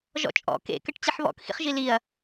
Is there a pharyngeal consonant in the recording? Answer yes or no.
yes